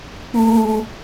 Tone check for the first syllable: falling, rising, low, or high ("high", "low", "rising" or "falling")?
high